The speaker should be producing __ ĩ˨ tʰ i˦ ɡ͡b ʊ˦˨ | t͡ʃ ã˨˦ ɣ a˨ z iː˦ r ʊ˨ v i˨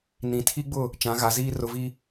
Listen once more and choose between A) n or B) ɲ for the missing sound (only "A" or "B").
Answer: A